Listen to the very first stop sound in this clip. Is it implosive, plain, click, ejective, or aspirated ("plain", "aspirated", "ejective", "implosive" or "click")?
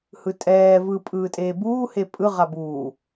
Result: ejective